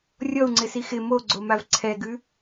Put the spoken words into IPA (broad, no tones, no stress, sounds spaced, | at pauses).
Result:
rʲ ɔ u̯ ŋ͡ǀ ɪ s i x ɪ m o ɡ͡ǀ o m a v ǀʰ ɛ ɡ ʉ